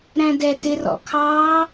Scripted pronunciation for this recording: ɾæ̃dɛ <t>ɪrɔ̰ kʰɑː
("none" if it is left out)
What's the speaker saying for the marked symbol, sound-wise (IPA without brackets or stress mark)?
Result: t